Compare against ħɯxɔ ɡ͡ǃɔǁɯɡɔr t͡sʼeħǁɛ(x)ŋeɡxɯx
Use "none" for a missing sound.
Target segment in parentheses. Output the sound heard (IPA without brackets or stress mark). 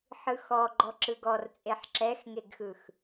x